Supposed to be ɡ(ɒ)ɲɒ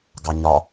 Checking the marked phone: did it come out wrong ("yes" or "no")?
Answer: yes